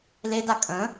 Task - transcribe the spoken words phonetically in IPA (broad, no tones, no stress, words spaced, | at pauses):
leda kʼə̃